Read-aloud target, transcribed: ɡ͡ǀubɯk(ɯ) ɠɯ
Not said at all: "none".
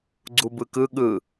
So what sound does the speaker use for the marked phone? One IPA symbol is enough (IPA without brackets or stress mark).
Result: ɯ